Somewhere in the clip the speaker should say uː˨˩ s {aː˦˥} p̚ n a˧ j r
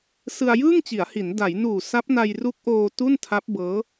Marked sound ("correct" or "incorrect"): incorrect